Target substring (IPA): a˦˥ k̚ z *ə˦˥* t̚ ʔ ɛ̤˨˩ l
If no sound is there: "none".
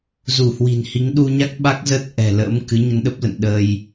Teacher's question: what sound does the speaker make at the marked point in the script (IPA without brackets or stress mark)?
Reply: ə˦˥